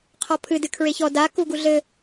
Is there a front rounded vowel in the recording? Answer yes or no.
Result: no